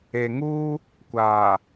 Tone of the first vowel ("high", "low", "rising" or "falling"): low